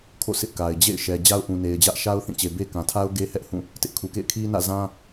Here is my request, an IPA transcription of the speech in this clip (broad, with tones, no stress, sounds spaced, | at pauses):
kʰ o̰˦˨ s ɪ˦ ʔ k a˨ ɪ̯ d͡ʑ ḛ˦˨ ɪ̯ ʃ ɛ˨ d͡ʑ a˦ ʊ̯ ʔ ũ˨ n e˨ ɪ̯ d͡ʑ ä˦ ʔ ʃ a˦ ʊ̯ θ ĩ˦˨ t͡ɕ e˨ b e˦ k ã˨ tʰ a˦ ʊ̯ ɡ e˦ h ɛ˦ ʔ h ũ˦˨ | t ɪ˦ ʔ kʰ u˨ k ḛ˦˨ ɪ̯ kʰ i˦ n ä̰˦˨ z ã˦